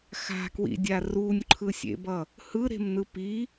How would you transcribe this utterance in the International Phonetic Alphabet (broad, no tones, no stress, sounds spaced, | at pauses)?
x a̤ k w ḭ dʲ a r u nʲ ǃʰ ɯ sʲ ḛ b ʌ | h ɯ ɾ e̤ m n ɯ p i